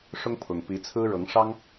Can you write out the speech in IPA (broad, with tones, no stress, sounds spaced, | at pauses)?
ʂ ʊ˦ ŋ pʰ ʊ˨˩ ŋ p i˨˦ t͡sʰ ɹ̩˦ ɻ ɤ˨˦ ŋ ʂ ɑ˦ ŋ